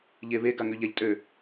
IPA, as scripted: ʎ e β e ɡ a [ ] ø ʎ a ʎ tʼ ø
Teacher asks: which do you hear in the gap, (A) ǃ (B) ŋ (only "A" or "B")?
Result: B